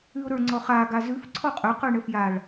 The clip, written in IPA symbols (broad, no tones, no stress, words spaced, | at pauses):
ʉʊ̯ɾə˞ŋ͡ǀɔχa ɡazʉf ǀʰɔqʼɵqə˞ ɳəfjaɭ